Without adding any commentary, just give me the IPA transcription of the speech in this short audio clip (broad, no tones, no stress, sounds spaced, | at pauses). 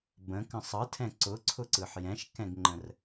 b ə̃ k ə̃ sˤ ɯ tʰ ɛ̃ ǀ ʊ ǀʰ ʊ ǀ ɯ ħ j ɛ̃ ʃ k ɛ̃ ɡ ŋ͡ǃ ə̃ r